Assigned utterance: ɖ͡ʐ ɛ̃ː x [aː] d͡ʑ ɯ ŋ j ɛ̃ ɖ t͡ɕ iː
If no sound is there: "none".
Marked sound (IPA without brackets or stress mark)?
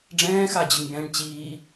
a